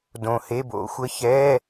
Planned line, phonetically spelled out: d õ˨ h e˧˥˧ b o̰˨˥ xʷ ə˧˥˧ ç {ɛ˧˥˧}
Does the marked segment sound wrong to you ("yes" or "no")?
no